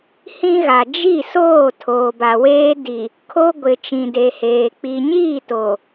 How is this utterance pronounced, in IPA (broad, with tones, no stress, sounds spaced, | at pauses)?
h ĩ˦ ɣ a˨ d͡ʒ i˦˨ s oː˦˨ tʰ oː˨ b a˨ w eː˦ d i˨ | kʰ o˦ ɡʷ ɪ˨ t͡ʃ ĩ˨ d e˨ h eː˨ k͡p i˨ ɲ iː˦˨ t o˨